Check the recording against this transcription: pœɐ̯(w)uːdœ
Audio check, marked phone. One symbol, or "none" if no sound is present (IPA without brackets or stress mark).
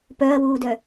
w